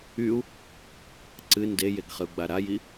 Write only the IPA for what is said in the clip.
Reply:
y u̯ | ǀ ɨ n d e j e ɡ χ ɨ u̯ ɡ͡b a ɾ a j i

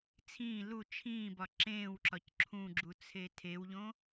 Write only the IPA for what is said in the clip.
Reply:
t͡sʰ ĩː l u t͡ʃʰ ĩː b ɒ ǁ ẽː w ǁ ɒ c ǁʰ ũ ɡ͡ǁ u t͡sʰ e tʰ e w ʎ õ

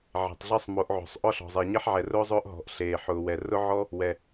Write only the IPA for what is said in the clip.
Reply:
ʕ e̤˨ tˤ ɮ e˦ sˤ m o˨˦ ʔ ʕ o̤˨ sˤ ʔ ɔ˦ ɬ ɔ̤˨ zˤ e˨ ɲ e˦ ħ ʕ ɛ˨ r ʊː˦ zˤ ʊː˦ ʔ ɦ ɔ̤˨ ʔ ɬ eː˨ ħ ʊː˨ w ɛ˨ r ʊ˦ ʕ ɔ˦ | w ɛ˨

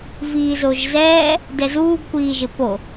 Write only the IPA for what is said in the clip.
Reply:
v iː z o ʒ z ɛː | d ɛ z uː ɡ kʷ iː ʒ ɪ p o

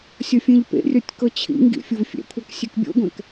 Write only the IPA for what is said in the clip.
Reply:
sʲ ɔ fʲ ẽ ʎ p ḛ rʲ ɔ tʲ k ɤ t͡ɕʰ ḭ ŋ ɡ ḭ fʲ o v fʲ ɛ̰ kʷʰ ɤ k sʲ ɛ k bʲ o̰ ɡʷ ɛ̃ k

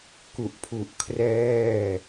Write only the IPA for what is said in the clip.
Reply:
k u˨˩ ʔ pʰ u˨˩ ʔ kʰ r ɛː˥˩

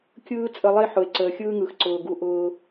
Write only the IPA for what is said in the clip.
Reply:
kʲ ɯː˦ t͡sʼ ə˧ lˠ e˦ ħ ʊ˨ e̯ ǀ əː˨ xʲ ɯː˦ ŋ ɯ˨ x ǀ ʊː˨ ɡ u˦ ʔ ʊː˦

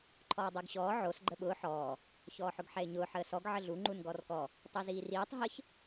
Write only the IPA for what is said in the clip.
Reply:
ǃʰ ɔː dˤ əː ɡ ɕ ɔː ʕ o s ɡ͡ǃ ə ɓ ʊː ħ ɔː | ç ɔː ħ ʊ ɡ ħ ɛ ɪ̯ ɲ ʊː ħ əː s ɔ ɡ ʕ ə ɮ u ŋ͡ǃ u n ɡ ɔ r k ɔ | tˤ i z iː r iː tˤ ɦ ə ç

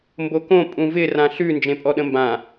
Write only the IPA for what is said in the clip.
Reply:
m b o k õ pʼ ũ v ɪ r ã ɬ ʉ n d͡ʒ ẽ pʼ ɔ ɗ ə̃ m b ã

